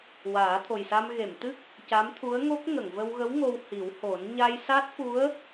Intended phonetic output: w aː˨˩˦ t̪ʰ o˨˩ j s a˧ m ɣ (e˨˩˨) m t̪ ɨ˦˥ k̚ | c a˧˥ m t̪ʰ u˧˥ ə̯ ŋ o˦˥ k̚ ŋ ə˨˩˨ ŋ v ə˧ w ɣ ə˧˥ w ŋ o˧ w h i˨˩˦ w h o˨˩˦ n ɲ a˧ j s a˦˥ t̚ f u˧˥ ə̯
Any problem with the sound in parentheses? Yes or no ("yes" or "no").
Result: no